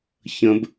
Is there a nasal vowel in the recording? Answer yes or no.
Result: yes